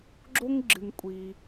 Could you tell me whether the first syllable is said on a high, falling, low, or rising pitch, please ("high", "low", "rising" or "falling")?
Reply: high